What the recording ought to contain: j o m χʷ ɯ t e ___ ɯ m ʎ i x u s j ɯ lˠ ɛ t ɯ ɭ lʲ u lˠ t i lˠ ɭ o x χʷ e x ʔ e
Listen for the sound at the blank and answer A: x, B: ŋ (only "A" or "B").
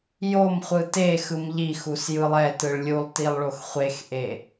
A